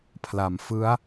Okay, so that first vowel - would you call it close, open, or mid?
open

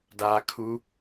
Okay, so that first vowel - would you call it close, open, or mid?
open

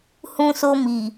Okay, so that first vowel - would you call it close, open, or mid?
close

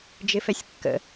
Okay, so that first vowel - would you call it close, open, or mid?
close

